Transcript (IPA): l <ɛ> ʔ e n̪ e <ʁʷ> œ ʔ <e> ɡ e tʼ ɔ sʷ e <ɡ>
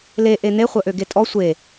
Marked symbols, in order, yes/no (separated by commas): no, no, no, no